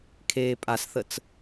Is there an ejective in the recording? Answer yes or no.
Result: yes